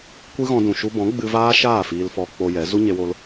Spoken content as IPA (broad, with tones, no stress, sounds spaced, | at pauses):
kʷ ɨ˦ ɣ ɔ̃˧ d ũ˨ ʃ u˧ b ɔ̃˨˦ ɡ͡b ɨ˧ v aː˦ ʃ aː˦˨ f iː˧ l f ɔ˧ k͡p o˧ j ɛ˨˦ z u˦ ɲ e˧ w o˧ l